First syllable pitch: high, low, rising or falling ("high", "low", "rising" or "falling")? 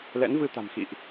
rising